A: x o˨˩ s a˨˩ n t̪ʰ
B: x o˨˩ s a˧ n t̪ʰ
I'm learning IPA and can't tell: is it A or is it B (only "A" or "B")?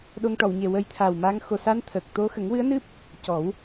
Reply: B